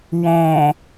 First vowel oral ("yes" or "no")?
no